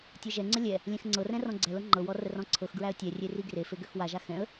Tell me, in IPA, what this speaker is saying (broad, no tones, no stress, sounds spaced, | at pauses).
tʲ ɤ ʒ ɛ ŋ͡ǀ ə lʲ ɛ | lʲ ɛ̃ x ŋ͡ǀ ɤ r ɛ̃ r ɔ̃ ɡ͡ǀ ɛ l ɤ ŋ͡ǃ ɤ w ɔ r ə r ɔ̃ ǀʰ ɤ x ɡ ɹ æ ə̯ tʲ ɛ rʲ e r i ɡ r e f e ɡ ø x w a ʒ a x ɛ̃ ə̯